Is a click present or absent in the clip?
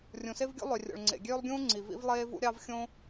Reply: present